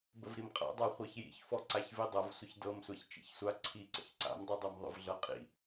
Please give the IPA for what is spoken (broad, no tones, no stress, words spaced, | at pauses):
bəvɾimqʼa̰dˤa χʷɤçjḭçfɔ ǀaçvidˤɤv sʷəçdɤmsʷaç t͡ʃḭçsʷa ǀʰiǀə̰ç ǀa̰mdˤudˤɤm ðˤə̰vɮɤqʼḭ